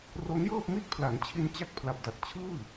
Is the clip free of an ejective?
yes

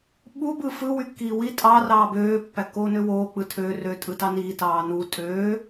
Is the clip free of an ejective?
no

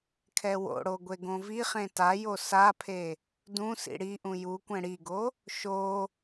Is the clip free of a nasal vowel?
no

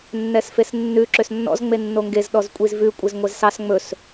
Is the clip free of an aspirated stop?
yes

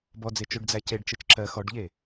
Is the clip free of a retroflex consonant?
no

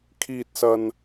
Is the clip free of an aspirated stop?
no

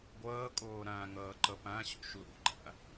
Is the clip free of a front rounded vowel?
yes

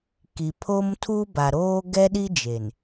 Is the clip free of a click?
yes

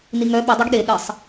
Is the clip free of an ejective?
yes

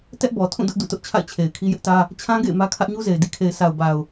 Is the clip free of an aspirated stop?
no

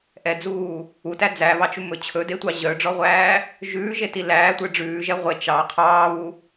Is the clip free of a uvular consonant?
no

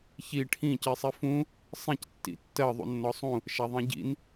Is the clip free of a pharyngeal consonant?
yes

